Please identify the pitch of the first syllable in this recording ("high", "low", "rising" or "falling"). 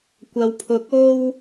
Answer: low